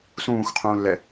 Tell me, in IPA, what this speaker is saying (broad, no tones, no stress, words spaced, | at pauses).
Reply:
sũːxqʰũːlːɛ